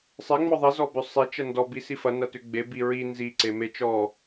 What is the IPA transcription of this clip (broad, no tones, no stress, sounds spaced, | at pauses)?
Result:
sˤ e ŋ͡m ɔ ðˤ i z ɔ b ʏ sˤ e t͡ʃ ɐ n d ɔ b i s i f ɐ n ɐ t ʏ ɡ͡b e b i ɹ i n z i ǀ e m e t͡ʃ ɔ